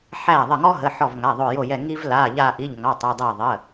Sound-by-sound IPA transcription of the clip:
ħ æ˧˩ ðˤ ə˧˩ ŋ ɔ˦ ɦ ə˩˧˩ ħ ɔ˧˩ v ŋ a˩˧˩ ðˤ o˧˩ j o˧˩ j ɛ˧˩ ŋ i˦ v l a˩˧˩ ʎ a˧˩ ʔ i˩˧˩ ʎ ŋ ɑ˩˧˩ tˤ o˧˩ dˤ ɛ˧˩ ðˤ ə˩˧˩

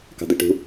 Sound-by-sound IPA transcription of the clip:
k ɑ̤ d̪ ɛ ʈ ṳ

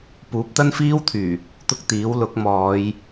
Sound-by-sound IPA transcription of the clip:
p uː˨˥ p̚ t̪ ɐ˥ n f iː˥ w t̪ʰ yː˨˩ | t̪ ʊ˥ k̚ t̪ iː˨˥ w l ʊ˨˥ k̚ m ɔː˨˧ j

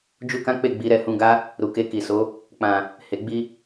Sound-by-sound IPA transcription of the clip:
d͡ʒ u˦ k ã˦ k͡p e˦˨ ɡ͡b i˨˦ ɾ ɛ˧ h ũ˧ ɡ a˦ | ɾ u˨ k e˧ k i˨ s o˨˦ | k͡p ã˨ | h e˨ ɡ͡b i˧

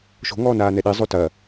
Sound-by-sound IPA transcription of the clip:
ʃ o̤ ŋ ɔː n aː n ɛ ɗ i zˤ o t ɐ

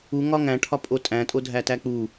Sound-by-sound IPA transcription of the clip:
u ŋ ɒ ŋ æ̃ ʈʰ ɒ pʼ o tʼ æ̃ tʼ o dʱ æ t æ k͡p u

